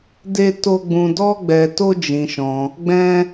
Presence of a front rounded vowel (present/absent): absent